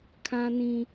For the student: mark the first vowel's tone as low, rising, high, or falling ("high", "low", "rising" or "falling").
high